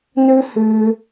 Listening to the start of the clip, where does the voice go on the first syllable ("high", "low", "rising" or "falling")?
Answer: high